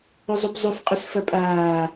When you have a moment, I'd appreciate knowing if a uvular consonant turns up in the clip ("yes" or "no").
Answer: yes